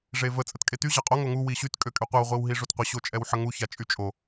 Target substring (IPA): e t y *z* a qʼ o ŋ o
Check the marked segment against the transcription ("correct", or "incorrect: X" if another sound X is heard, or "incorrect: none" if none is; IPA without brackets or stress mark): incorrect: ʑ